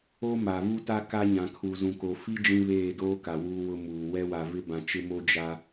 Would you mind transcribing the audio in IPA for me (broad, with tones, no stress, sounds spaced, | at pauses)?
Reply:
o˦ m a˨ v u˦ t a˦ k a˦ ɲ ã˨ kʰ u˨ z ũ˨ k o˨ f i˦ d͡ʒ ĩ˦ β eː˦˨ d oː˦ k a˨ w uː˦ w ʊ˦ m uː˨ w ɛ˦ w a˨ v ɪ˦ b ã˨ t͡ʃ ɪ˦ m o˦ d͡ʒ a˦